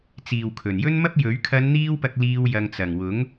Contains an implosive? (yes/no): no